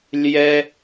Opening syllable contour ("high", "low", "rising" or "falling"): high